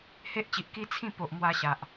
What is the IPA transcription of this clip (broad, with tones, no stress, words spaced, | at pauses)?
he˦ʔt͡ɕi˨ʔki˦ t͡sʰĩ˥˧ po˨ʔmwa˧ ɕa˨ʔ